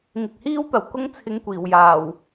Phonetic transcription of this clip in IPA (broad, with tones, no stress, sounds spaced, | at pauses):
ŋ ɪ˨ k̚ h iː˥ w t̪ ɐ˨˩ w k ʊ˥ ŋ t͡sʰ ɪ˧ ŋ kʷ iː˨˩ w j aː˨˩ w